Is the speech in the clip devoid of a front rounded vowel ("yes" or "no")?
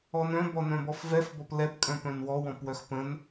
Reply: no